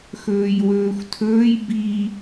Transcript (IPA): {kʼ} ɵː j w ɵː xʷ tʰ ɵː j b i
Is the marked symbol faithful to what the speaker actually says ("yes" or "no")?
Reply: no